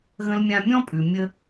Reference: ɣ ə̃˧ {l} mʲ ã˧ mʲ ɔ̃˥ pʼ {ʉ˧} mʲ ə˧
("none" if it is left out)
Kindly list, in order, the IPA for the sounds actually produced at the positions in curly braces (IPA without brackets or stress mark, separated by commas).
l, ʉ˩